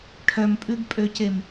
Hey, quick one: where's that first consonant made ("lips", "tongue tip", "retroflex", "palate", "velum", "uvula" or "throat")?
retroflex